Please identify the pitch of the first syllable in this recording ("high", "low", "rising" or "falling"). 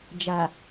low